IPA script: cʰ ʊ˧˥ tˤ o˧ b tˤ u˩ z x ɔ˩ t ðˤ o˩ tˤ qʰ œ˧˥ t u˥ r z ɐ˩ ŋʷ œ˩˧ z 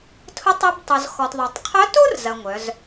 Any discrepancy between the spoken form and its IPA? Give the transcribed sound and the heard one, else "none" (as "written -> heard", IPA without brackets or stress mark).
cʰ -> tʰ